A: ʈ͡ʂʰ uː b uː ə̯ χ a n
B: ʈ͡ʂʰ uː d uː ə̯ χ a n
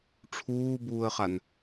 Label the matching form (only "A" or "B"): A